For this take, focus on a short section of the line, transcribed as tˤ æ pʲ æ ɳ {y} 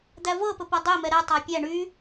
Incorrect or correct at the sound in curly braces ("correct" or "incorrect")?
correct